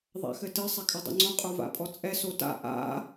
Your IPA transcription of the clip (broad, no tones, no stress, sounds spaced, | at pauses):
ðˤ a̰ x ɘ t ɘ sˤ ɛ kʼ ɐ dˤ ṵ ŋ͡ǀ õ qʼ o v a̰ pʼ ɔ t͡sʼ ɛ s o t a̰ ʔ a̰